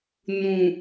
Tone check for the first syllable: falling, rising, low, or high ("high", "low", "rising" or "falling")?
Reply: low